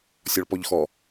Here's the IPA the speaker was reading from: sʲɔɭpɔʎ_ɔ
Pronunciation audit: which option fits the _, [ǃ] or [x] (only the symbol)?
x